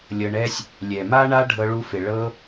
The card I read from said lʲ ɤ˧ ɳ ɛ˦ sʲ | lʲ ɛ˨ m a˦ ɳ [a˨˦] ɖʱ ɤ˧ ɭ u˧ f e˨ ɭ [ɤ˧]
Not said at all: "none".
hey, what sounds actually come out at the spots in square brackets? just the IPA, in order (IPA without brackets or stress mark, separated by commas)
a˦, ɤ˧